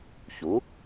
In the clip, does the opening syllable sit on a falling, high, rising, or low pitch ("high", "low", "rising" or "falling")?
rising